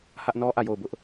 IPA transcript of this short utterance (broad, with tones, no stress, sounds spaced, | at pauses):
h ä˦ ʔ n ɔ˦ ʔ ä˦˨ j o˦˨ ʊ̯ b ʊ˦ ʔ